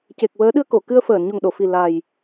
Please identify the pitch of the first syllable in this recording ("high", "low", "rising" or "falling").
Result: low